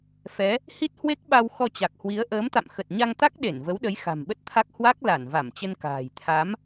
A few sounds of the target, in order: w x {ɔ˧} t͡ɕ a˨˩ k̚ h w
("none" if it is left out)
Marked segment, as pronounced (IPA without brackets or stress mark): ɔ˧